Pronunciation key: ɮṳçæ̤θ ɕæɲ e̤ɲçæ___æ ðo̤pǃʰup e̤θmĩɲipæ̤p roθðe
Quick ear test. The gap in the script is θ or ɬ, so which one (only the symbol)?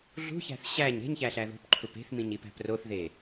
ɬ